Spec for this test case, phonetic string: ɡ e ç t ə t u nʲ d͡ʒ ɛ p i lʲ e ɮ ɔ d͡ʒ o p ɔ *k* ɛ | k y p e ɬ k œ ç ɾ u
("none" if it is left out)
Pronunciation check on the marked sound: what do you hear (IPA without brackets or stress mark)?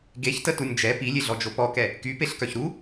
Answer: k